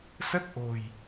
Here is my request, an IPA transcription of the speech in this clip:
s ə˦˥ t̚ ʔ o̤˨˩ j

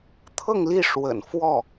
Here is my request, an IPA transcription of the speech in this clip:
t̪ʰ ɤ˥˧ ŋ l i˥˩ ʂ w ə̰˨˩ n f w ɔ˥˩

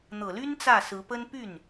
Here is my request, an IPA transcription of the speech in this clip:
n̪ ɤ˨˩ l y˥ n t͡s ä˥˩ s ɹ̩˧˥ p ə˥ n p y˥˩ n

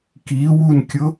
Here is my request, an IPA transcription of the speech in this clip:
k i w u n kʲ ʊ

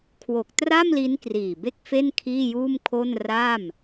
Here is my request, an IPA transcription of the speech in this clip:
kʰ w o˨˩ k̚ t r a˥˩ m l i˦˥ n k r iː˨˩ b e˥˩ k̚ f e˥˩ n kʰ iː˥˩ j uː˥˩ m kʰ o˥˩ n r a˥˩ m

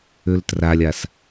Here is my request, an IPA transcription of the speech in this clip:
ø l t r a lʲ a s

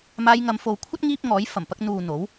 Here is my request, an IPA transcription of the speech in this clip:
m aː˧ j ŋ ɐ˨˧ m f o˨ w kʷʰ ɐ˥ t̚ ŋ iː˥ p̚ ŋ ɔː˨˥ j f ɐ˨˩ m p ɐ˧ k̚ n̪ uː˨ n̪ o˨˥ w

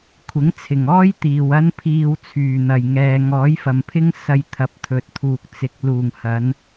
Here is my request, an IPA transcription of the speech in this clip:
kʷʰ ɪ˨˥ ŋ t͡sʰ ɪ˨˩ ŋ ɔː˥ j t̪ iː˨ w ɐ˥ n pʰ iː˧ w t͡sʰ yː˨˩ n̪ ɐ˨˩ j ŋ ɛː˨ ŋ ɔː˨˥ j f ɐ˨ m pʰ ɪ˥ ŋ s ɐ˧ j t̪ʰ ɐ˨˥ p̚ t̪ʰ ɵ˨ t̚ t̪ʰ uː˨ k̚ t͡s ɪ˨ k̚ l uː˨˩ ŋ h ɐ˨˧ n

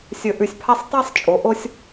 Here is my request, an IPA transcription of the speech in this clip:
sʲ ɵ˧˩ ʔ ʉ˧˩ sʲ pʰ a˥ sˤ tˤ a˥˧ sˤ t͡ʃʼ o˩˧ ʔ o˧ sʲ

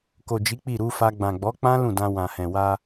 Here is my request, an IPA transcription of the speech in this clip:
k o˨ d͡ʒ i˨˦ k͡p i˦˨ ɾ u˧ f a˧ ɡ͡b ã˨ ɡ͡b ɔ˨˦ k͡p ã˦ l ũ˦˨ d ã˧ w ã˨ h ɛ̃˨ w a˧

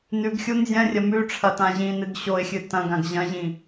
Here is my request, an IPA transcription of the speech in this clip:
n ʉ ɡ xʲ u n zʲ ɐ̃ rʲ ɐ m ʉ ʈ͡ʂʰ ɐ t ã ʑ ĩ n ɨ ɡ ɕ o ɪ̯ xʲ ɨ t ɐ̃ ɡ ã ɡ ʑ ɐ̃ ʑ ĩ

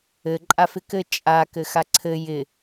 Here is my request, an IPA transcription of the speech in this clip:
ɘ ǃʼ a f ɪ k ɘ t͡ʃʼ a k ɘ x a ǀʰ ɘ j ɪ

